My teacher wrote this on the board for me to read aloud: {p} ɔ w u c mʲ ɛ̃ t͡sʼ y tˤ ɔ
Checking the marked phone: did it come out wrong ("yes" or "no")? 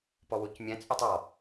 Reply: no